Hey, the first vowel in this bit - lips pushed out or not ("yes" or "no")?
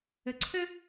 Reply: no